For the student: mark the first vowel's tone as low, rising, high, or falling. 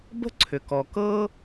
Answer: high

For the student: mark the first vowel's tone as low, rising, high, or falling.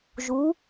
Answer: rising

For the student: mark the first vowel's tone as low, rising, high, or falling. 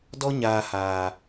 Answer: high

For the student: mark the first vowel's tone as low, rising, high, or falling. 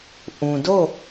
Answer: low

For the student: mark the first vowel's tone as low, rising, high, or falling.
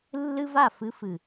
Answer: high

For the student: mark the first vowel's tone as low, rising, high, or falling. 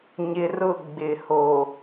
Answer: low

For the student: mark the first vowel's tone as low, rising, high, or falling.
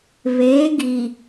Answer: rising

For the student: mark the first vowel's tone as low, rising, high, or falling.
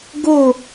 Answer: falling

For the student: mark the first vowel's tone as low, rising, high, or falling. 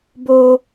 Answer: high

